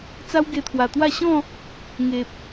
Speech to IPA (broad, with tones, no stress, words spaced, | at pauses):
t͡sa˦wɡe˧t̪ʰwa˨˩ t̪wa˥˧ ɕɔ̃˥˧ | ŋe˨p̚